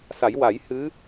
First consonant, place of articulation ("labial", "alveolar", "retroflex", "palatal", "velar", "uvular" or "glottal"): alveolar